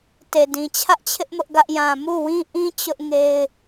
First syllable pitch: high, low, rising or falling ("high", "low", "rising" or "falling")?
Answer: low